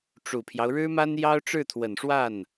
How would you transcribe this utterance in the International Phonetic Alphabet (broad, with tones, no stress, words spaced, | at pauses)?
ʈ͡ʂu˨˩pʰjɑ˦ʊ̯ɻɻ̩˥ma˥n jɑ˥ʊ̯ʈ͡ʂɻ̩˥˩t̪ʰwə˨˩nʂwa˥˩n